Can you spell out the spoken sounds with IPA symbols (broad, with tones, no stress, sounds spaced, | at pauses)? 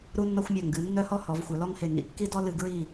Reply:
ɾ u˦ nː ɔ˦ xʷ mʲ a˧˩ ŋ ɡ ɨ˩˧ nː œ˦ h ɔ˦ h ɔ˩˧ v xʷ œ˩˧ l ɔ˦ ŋ h e˧˩ ŋ ḭ˧˩ kː i˦ d ɔ˦ l ɨ˧˩ ɡ ɹ i˧˩